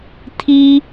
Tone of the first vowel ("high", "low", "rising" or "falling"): high